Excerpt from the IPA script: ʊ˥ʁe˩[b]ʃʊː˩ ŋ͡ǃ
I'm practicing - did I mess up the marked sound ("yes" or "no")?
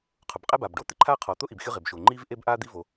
no